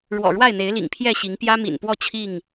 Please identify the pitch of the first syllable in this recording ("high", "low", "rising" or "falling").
low